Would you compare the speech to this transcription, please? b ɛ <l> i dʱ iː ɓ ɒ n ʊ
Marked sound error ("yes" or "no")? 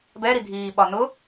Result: yes